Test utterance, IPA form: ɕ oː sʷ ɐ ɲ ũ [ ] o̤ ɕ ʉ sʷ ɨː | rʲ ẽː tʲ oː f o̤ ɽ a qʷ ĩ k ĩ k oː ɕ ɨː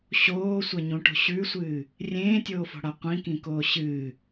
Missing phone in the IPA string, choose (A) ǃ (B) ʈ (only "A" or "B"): B